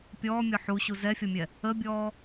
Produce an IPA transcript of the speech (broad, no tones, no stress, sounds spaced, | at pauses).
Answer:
pʲ ɔː mʲ ɔ ħ u ɕ u z ɛ fʲ ɔ mʲ ɛ | ə bʲ ɔː